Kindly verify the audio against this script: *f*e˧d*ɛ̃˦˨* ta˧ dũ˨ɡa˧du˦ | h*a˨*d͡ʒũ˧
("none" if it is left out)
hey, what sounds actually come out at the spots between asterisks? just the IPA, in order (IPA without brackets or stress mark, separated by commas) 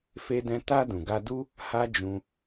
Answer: f, ɛ̃˧, a˦